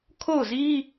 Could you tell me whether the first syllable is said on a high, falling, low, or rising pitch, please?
falling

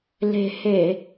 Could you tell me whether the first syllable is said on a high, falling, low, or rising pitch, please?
low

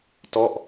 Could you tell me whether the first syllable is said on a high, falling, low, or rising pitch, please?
falling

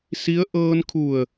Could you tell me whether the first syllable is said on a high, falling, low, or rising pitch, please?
rising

